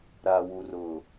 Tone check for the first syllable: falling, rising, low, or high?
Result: low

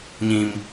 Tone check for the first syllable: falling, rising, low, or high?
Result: high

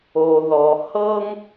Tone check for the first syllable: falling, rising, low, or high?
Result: low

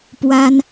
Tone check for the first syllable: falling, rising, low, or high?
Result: high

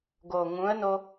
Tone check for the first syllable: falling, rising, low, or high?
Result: low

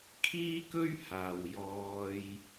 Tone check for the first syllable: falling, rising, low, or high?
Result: high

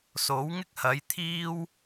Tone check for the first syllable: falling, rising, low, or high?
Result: rising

